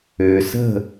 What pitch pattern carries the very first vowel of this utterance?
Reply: low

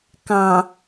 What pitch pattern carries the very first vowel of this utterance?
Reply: low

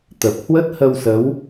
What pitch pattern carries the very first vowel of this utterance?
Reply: low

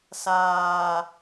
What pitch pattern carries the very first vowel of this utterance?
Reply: low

